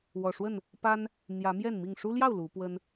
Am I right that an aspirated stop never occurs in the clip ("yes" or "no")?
yes